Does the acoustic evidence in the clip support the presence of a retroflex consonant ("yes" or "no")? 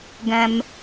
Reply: no